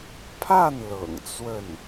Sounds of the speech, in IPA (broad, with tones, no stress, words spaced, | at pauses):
pʰa˥˩n lɤ̰˨˩ŋt͡swə˥˩n